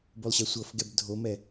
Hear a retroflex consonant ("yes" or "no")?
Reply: no